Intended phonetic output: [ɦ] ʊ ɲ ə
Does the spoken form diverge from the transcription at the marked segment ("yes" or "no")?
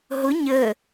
no